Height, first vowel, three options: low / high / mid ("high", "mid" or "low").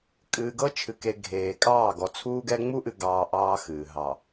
high